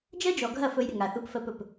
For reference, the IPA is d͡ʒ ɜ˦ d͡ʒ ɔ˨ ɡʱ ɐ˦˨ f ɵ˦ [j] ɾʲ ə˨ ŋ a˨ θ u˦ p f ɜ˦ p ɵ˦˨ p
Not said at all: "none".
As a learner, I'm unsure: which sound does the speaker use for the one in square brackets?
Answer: j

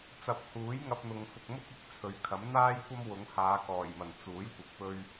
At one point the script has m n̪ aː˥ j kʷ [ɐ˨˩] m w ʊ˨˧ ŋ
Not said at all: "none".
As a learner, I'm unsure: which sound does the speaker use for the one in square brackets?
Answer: ɐ˥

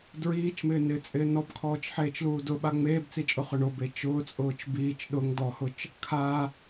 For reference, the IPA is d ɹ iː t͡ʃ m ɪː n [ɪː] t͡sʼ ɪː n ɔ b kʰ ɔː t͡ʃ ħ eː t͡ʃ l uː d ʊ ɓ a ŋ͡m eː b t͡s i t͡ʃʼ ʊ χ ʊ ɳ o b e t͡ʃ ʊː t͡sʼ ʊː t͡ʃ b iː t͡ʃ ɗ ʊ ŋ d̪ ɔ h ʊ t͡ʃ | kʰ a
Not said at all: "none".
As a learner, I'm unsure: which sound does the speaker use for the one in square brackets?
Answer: ɪː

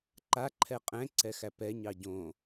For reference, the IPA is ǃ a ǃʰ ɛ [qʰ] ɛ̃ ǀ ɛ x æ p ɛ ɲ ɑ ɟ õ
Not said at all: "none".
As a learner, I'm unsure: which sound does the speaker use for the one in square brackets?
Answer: qʼ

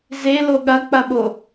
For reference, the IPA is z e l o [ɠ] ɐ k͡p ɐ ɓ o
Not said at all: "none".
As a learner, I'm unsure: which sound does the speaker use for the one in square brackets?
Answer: ɠ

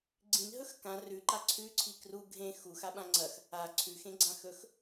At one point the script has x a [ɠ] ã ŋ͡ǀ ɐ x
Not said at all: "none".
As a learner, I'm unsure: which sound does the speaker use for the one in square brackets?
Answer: ɓ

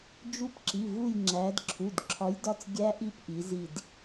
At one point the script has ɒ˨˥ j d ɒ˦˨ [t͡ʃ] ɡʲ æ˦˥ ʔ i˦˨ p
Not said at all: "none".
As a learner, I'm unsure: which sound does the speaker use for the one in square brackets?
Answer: t͡s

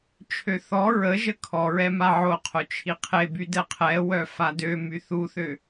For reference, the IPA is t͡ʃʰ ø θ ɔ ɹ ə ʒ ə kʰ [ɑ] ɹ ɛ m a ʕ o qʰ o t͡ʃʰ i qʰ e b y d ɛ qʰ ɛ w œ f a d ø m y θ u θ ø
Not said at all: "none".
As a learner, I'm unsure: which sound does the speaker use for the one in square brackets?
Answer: ɔ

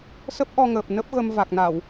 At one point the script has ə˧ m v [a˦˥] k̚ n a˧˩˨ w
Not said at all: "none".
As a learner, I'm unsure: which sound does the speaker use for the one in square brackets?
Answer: a˨˩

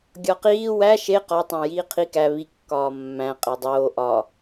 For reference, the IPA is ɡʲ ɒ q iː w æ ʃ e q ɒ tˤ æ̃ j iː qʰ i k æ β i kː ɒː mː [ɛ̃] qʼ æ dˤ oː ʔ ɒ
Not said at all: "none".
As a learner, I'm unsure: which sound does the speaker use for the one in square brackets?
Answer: æ̃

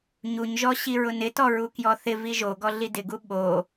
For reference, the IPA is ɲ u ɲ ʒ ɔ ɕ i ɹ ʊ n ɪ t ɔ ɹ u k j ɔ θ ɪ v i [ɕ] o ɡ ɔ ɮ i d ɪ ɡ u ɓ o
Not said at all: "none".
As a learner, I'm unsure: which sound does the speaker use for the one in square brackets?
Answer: ʒ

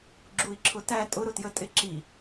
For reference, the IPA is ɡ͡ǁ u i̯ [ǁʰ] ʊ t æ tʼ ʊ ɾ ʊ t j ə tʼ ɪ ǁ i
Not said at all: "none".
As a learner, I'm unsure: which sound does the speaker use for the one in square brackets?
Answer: ǁʰ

